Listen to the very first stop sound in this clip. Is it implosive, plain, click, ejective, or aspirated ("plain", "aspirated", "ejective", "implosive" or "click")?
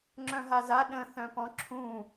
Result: click